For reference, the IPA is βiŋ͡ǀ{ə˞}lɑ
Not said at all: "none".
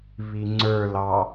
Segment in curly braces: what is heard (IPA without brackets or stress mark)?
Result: ə˞